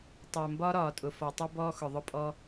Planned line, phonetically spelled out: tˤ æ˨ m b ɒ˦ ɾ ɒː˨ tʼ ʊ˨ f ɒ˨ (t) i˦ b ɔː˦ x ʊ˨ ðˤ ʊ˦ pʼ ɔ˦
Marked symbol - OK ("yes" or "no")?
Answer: no